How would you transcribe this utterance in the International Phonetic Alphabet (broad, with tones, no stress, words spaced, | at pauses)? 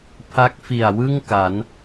pʰa˦˥k̚fi˨˩a̯wɯ˥˩ŋ ka˩˦n